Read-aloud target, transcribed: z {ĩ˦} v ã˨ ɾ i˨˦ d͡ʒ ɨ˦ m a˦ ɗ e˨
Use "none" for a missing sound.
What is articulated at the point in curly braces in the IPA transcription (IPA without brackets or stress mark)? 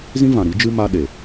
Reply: ĩ˦